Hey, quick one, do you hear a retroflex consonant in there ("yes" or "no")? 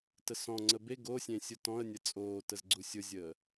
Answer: no